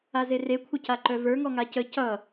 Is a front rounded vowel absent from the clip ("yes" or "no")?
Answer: no